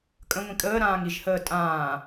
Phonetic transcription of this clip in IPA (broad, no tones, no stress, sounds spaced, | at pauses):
kʼ ə̃ ŋʷ ĩ kʼ əː ɾ ãː ŋ i ʒ h əː tʼ ãː